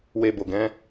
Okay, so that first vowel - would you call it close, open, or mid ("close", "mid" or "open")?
mid